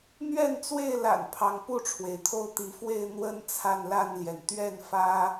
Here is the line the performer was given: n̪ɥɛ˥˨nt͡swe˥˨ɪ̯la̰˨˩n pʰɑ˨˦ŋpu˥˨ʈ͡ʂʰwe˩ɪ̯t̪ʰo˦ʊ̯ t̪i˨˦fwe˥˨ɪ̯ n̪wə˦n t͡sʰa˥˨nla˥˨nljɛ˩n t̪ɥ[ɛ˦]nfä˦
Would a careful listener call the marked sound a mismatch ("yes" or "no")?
yes